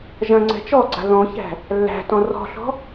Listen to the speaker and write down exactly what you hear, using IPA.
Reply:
ʒɐ̃ ŋ͡ǀɛ̤t͡ʃɔɡ͡ǀa̤ ðɔ̃çæ̤ | lːæ̤tɔ̃ rɔ̤ɬɔ̤

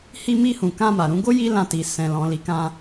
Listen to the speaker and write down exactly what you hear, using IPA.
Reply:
hi˧mi˧hũ˨ kã˧ma˨ɾũ˧ɡo˦ ji˦lã˧ti˨ sɛ̃˨lɔ̃˨ li˨˦kã˧

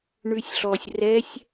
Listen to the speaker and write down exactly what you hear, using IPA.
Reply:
ɳʉsʲɬɔsʲ rɛsʲ

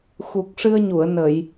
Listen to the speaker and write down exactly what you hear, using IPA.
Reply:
xu˨˩k̚ʂɨ˧ə̯ɲu˨˩˨ə̯ nə˨˩˨j

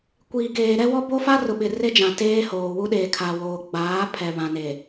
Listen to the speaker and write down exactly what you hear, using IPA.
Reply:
kʷiː˨ɡeː˨ɾɛ˦wɔ˦ bo˦ fa˦rʊ˨ɓɪ˨ re˦d͡ʒã˨ teː˦hoː˨wu˦ ɗe˨kʰa˨woː˨ ɡ͡baː˨˦pʰɛ˨ βã˨neː˨

